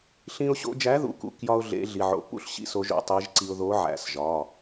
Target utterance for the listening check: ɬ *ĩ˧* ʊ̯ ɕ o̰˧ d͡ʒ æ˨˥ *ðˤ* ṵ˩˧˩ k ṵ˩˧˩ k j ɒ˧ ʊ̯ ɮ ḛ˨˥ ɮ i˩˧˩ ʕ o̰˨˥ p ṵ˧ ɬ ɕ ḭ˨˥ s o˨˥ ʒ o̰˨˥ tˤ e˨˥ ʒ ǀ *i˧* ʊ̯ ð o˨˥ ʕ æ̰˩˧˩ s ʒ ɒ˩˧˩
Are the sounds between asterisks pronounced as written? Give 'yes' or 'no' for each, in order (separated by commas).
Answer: yes, no, yes